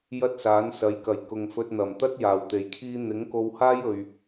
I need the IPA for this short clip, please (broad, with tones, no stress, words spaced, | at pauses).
jɐ˥t̚saː˨˥nsɐ˨˥jkɐ˨˩j kʊ˨ŋfɵ˧t̚n̪ɐ˨˩m t̪ɐ˥t̚jaː˨˩wt̪e˨˩j kʰiː˧ n̪ɪ˨˥ŋko˧whaː˥j ɵ˨ɥ